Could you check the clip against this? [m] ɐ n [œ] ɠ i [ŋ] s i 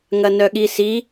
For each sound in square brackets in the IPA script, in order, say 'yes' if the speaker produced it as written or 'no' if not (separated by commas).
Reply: no, yes, no